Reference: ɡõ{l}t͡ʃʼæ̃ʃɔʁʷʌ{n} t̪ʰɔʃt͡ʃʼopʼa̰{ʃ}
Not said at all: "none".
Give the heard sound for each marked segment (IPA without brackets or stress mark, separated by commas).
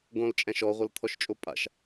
l, l, ʃ